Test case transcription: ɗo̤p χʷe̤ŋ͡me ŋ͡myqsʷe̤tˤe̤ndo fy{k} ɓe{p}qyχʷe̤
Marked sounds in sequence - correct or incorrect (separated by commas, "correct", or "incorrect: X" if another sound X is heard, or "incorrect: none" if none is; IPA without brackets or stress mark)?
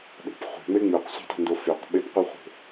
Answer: incorrect: q, correct